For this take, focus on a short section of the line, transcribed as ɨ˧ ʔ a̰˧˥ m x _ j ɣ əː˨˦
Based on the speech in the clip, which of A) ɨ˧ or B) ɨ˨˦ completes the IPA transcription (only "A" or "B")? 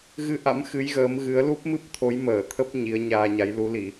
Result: B